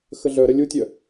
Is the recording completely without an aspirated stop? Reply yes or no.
yes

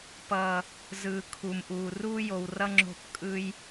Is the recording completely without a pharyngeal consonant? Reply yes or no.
yes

